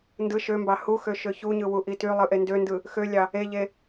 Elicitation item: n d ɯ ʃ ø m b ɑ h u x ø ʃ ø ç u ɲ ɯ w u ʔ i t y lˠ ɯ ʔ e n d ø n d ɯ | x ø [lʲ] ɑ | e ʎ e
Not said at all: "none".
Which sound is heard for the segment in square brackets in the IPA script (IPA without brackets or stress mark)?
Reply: lʲ